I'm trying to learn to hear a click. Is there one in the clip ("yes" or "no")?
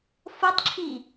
yes